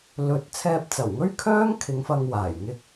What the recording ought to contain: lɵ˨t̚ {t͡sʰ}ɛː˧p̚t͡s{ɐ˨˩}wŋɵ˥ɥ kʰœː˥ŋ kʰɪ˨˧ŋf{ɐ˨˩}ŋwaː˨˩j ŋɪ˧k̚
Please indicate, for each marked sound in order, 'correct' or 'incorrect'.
correct, correct, incorrect: ɐ˧

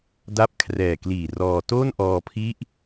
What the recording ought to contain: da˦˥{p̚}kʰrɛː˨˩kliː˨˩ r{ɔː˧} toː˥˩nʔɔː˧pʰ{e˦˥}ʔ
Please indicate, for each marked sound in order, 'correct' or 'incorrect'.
correct, correct, incorrect: i˦˥

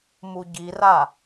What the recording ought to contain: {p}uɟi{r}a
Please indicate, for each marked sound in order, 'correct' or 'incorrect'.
incorrect: m, correct

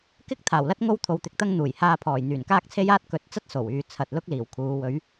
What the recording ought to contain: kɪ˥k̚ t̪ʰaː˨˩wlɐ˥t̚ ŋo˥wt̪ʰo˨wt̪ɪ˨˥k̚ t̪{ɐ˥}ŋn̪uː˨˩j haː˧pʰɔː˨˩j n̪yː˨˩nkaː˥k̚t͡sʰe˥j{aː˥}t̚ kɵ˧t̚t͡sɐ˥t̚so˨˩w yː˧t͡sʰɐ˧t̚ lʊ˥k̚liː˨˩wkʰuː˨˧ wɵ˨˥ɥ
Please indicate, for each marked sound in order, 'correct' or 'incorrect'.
correct, correct

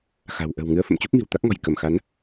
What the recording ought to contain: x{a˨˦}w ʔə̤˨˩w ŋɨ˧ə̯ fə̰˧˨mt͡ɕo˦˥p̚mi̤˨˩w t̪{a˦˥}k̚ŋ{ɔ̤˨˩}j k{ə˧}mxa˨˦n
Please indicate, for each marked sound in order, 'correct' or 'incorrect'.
incorrect: a̤˨˩, correct, correct, incorrect: ə˧˩

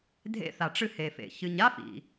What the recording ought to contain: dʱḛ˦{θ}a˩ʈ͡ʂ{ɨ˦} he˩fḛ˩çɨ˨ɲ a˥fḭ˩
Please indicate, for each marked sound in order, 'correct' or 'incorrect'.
correct, correct

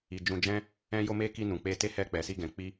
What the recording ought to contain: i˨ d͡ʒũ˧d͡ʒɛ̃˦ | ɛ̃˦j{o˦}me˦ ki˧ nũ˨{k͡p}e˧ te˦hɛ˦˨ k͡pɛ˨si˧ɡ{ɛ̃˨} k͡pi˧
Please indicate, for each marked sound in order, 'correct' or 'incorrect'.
correct, correct, correct

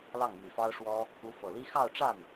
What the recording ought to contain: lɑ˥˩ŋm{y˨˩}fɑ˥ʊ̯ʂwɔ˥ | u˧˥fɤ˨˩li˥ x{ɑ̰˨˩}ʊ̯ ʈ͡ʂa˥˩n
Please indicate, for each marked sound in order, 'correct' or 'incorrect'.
correct, incorrect: ɑ˥˧

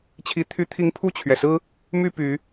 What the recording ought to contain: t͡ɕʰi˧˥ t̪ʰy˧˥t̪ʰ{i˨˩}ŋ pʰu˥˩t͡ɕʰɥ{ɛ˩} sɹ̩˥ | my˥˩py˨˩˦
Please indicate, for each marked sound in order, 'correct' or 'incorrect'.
incorrect: i˧˥, correct

